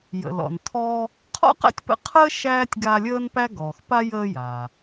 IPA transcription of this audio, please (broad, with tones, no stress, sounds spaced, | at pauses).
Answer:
j ə̰˩ l ɔ̰˩ n tʰ ɔː˦ | qʰ ɔ̰˥ q æ̰˥ tʲ p ə̰˦ qʰ əː˥ ʃ æː˥ tʲ ɡ a˦ lʲ əː˥ n p æ˥ ɡ ɔː˩ x p a˥ j əː˦ j aː˩